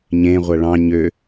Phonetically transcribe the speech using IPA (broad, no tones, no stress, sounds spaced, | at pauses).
ɲ ẽ ʁʷ ɐ ɭ ɑ̃ ɲ ø